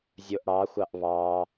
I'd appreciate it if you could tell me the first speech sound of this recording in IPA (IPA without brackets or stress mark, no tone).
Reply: zʲ